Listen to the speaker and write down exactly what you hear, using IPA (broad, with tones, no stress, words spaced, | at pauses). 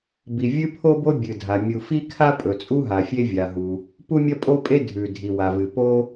bi˩vʲɨ˥pʰo˥bo˥ bʲɨ˩dʱa˩ mʲu˩fi˥kʰa˥ pʼɵ˩t͡sʼu˥ɦa˩ fʲe˥vʲa˩ɦu˩ | pu˥mʲɐ˥pʼo˥pʼe˥ dʱʉ˩ dʱi˩wa˩vɨ˩ po˥